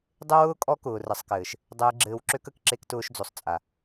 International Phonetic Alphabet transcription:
dˤ e˦ w ʊː˦ kʼ ɔ˦ k ʊː˨ r ɘ˨ sˤ k ɘː˨ ʃ | dˤ ɘː˧ ɡ͡ǁ ɘː˧ w ǁ ø˦ k ə˧ k ǁ e˧ k t ʊː˧ ʃ d͡z o˨ sˤ t͡sʼ a˨

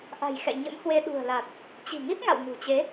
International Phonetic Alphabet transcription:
ʔ a̤˨˩ j x ɛ̰˧˨ ɲ ə̰˧˥ m h w e˧ ɗ ṳ˨˩ ə̯ l a˨˩ t̚ | t͡ɕ i̤˨˩ ŋ i˦˥ t̚ ŋ a̰˧˨ w ŋ ṳ˨˩ t͡ɕ e˨˦

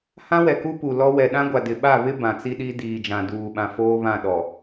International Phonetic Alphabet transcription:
h ã˦ w ɛ˨ k u˦ p u˨ l ɔ˦ w ɛ˨ ɗ ã˦ ɡʷ a˨ d ɪ˨ ɓ a˦˨ β ɪ˦ b ã˨ t͡s i˦ ɗ i˦ d iː˨ d͡ʒ ã˨ d uː˨ ɓ ã˨ f oː˦ β ã˦˨ ɗ ɔ˨

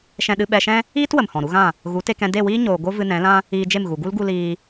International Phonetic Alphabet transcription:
ʃ ɛ̃˧ ɗ ɨ˧ ɓ ɛ˧ ʃ ɛ̃˦ | iː˦ t w ə˨ m h ɔ̃˨ ɾ u˦ ɣ ã˦˨ | ɣ u˨˦ t e˧ k ɛ̃˧ d e˦˨ w iː˦ ɲ oː˨ ɡ o˦ v ɨ˧ n ɛ̃˨˦ l ã˦ | iː˧ d͡ʒ e˦˨ m ɣ u˨ ɡ u˦ l ɡ u˧ l iː˧

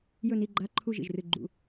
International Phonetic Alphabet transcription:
j ɵ˦˨ n i˦˨ ɡ͡ǃ a˧˥˧ ǃʰ u˦˨ ʒ ḭ˦˨ ʒ r ɨ˦˨ ɡ͡ǃ ṵ˦˨

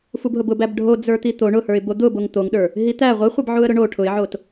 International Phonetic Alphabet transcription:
f u b ɦ ʊ b ʊ b æ b ɖʱ o d͡z ə˞ t̪ i t̪ o ɳ ʊ h ə˞ ɪ̯ b o d̪ ʊ b o ŋ t̪ o ŋ ɗ ə˞ | ɦ i t̪ æ ʁʷ i χʷ i b ʕ u ə̯ ɾ ʊ ɳ o ʈʰ ʊ ɪ̯ ʕ o t

